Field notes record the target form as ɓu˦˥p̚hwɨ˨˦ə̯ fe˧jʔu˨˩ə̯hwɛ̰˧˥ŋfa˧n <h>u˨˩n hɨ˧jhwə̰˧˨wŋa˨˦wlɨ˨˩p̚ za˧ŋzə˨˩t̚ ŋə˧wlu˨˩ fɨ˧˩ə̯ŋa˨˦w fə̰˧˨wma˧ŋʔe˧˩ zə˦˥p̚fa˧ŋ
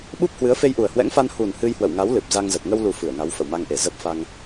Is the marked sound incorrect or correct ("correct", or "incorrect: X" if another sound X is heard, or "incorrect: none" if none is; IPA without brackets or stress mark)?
correct